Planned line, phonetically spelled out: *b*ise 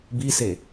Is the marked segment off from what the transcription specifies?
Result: no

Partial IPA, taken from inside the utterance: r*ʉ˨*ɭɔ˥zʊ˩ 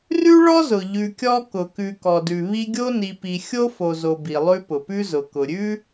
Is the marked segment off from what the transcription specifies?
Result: yes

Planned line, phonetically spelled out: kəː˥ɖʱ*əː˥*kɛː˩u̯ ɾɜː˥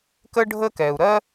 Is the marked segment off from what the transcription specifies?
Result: no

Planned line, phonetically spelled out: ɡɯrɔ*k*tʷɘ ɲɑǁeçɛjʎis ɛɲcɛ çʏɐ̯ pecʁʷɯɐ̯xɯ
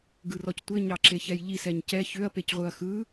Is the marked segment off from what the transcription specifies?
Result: yes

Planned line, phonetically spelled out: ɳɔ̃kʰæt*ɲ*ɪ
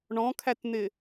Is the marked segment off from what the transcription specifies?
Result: yes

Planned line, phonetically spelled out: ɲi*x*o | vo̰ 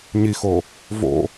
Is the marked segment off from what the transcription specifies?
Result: no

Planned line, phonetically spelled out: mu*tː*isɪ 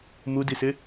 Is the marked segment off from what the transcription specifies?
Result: yes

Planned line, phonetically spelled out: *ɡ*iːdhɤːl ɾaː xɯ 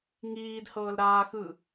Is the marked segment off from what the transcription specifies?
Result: yes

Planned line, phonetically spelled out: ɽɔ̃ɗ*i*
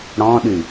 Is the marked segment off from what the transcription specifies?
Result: yes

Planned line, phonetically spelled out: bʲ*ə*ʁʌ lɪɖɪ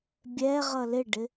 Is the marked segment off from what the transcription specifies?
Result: yes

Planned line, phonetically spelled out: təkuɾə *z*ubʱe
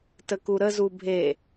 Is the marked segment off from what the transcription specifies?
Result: no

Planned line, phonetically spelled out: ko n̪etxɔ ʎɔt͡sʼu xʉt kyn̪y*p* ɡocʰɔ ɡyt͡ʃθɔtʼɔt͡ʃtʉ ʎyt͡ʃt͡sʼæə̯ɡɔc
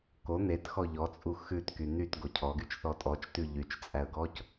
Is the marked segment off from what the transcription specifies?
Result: yes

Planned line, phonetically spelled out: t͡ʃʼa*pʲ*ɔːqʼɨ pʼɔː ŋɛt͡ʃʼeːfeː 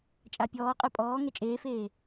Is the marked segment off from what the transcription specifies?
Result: no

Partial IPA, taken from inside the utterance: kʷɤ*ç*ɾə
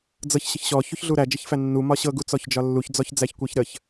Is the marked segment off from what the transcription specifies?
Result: no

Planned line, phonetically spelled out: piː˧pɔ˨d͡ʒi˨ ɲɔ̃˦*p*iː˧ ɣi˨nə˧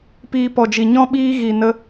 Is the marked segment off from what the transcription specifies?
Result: yes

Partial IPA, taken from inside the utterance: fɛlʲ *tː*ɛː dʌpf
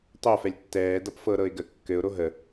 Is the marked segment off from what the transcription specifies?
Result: no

